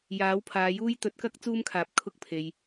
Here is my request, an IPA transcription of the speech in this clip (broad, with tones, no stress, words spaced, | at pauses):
jaː˨˥wpʰaː˨˧juː˥j t̪ɵ˨˥t̚kɐ˥k̚ t͡suː˥mkʰaː˨˥p̚ kʰʊ˥k̚pʰe˨j